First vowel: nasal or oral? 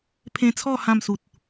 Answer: nasal